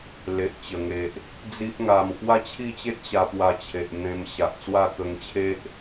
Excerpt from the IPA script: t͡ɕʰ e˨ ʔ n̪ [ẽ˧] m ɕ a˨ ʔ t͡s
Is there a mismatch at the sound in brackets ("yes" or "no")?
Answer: no